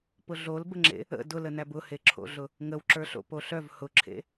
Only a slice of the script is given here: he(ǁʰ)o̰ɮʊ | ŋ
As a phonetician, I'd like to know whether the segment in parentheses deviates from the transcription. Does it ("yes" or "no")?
no